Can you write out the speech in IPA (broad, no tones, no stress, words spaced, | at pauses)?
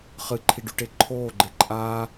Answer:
χɨǃʰiɖʉʈe ǃʰoːɡ͡ǃe ǃʼa